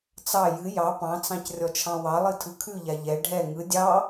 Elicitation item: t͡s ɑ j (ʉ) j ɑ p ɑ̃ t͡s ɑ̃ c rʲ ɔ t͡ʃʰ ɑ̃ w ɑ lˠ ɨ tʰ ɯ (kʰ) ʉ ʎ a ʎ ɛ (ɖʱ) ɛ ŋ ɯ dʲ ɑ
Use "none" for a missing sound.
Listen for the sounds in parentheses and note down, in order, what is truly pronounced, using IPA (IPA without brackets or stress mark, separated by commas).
ɨ, kʰ, ɖʱ